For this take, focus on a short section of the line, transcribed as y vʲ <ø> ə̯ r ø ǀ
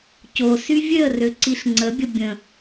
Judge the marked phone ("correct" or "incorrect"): correct